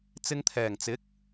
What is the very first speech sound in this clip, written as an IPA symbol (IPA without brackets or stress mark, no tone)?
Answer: t͡s